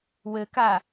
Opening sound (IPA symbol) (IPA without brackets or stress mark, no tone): w